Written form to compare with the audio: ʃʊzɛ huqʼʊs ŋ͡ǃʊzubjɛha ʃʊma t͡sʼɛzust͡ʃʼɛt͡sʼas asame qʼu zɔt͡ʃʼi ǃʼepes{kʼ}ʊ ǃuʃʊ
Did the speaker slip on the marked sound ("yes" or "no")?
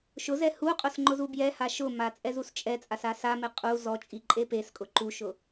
no